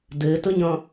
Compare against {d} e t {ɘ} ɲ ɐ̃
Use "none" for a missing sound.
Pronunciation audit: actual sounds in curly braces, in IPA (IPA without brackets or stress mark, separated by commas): d, ɘ